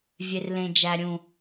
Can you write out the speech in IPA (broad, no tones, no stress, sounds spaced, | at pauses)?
vʲ e r l ẽ d͡ʒ æ ɾʲ ũ